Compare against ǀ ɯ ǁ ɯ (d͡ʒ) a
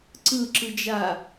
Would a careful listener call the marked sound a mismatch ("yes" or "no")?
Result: no